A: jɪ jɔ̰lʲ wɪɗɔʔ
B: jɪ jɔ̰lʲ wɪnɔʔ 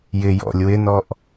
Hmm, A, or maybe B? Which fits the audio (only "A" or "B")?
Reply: B